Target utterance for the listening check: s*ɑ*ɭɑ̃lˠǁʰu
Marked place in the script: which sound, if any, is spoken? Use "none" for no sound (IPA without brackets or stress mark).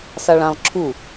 ɑ